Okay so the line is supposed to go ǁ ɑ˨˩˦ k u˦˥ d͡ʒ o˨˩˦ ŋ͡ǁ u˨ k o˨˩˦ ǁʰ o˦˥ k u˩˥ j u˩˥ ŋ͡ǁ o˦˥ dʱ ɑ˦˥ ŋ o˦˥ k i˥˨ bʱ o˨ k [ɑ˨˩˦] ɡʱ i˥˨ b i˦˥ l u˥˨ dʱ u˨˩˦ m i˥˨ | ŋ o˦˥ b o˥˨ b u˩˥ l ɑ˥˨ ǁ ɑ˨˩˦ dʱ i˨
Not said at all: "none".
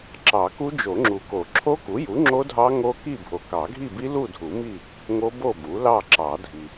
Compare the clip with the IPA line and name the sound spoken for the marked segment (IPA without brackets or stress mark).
ɑ˨˩˦